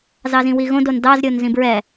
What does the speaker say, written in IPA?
z ɑ z ĩ w i ɣ õ d o n d ɑ z ɾʲ o n z ĩ b ɹ ɛ

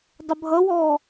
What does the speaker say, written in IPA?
dˤ ə bʱ ʌ w ɔː

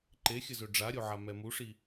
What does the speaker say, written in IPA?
ǃ e xʲ ə z ø ɖ͡ʐ a ɾʲ o ʕ a m ɛ m u ʂ i

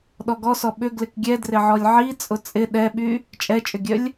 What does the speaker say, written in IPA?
ɗ ɔ ɡ ɔ s ɔ ɓ ʏ ɡ l ɪ k ɡʲ ɛ d r ɪ ʕ ɔ lʲ ʕ i t͡sʼ ʊ t͡sʼ ɪ ɗ ɛ ɓ y | t͡ʃʼ ɛ t͡ʃʼ ʏ ɡʲ œ lʲ

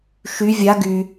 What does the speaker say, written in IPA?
ʃ y vʲ a ɡ y

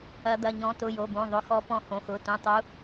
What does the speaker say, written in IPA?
ɐ˨˦ d̪ ɐ˩˧˩ ɲ ɔ̃˨˦ t ʊ˩˧˩ j o˩˧˩ b õ˩˧˩ ðˤ ʊ˩˧˩ x ɔ˨˦ p ɔ̃˨˦ h õ˩˧˩ x ʊ˩˧˩ t ũ˩˧˩ tˤ u˨˦

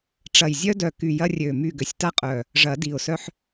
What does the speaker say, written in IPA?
ʈ͡ʂ ɐ˨˩ j zʲ œ˦ d œ˨˩ k y˨˩ j ɐ˦ rʲ ø˨˩ m y˨˩ ɡ ø˨˩ sʲ t a˦ qʼ œ˨˩ | ʐ ɐ˨˩˦ d i˨˩ ʊ̯ s œ˦ ħ

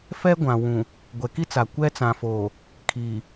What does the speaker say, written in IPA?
f ɛ˦ ɡʷ ã˨ w ũ˨ | ɡʷ ɛ˨ k i˦ t͡s a˨ kʷ ɛ˦ t͡s ã˨ f oː˨ | kʰ iː˨

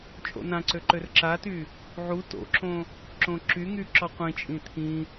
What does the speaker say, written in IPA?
t͡ʃʼ o̰ n ã ǀ ø ǃ ø r ǁ a t y | ʕ u t o̰ ǁ õ | ǁ õ ǁ y ŋ y ǁ ɔ qʷ ĩ t͡ʃʼ ĩ t̪ʰ ĩ

